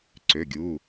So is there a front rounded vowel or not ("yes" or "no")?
yes